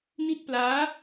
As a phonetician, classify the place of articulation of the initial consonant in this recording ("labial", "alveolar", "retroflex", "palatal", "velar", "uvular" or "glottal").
alveolar